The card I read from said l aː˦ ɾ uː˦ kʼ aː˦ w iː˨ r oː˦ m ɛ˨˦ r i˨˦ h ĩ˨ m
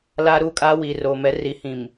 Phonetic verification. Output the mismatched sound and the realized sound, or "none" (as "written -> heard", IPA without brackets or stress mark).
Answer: oː˦ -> oː˨